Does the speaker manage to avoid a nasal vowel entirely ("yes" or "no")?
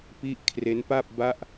yes